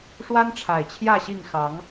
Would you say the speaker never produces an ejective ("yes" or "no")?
yes